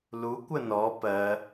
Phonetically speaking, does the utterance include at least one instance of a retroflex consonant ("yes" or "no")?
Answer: no